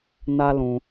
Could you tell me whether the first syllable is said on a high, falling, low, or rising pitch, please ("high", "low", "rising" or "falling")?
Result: high